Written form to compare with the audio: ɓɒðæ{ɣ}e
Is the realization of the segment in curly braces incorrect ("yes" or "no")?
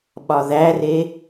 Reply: yes